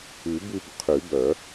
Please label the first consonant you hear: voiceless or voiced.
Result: voiced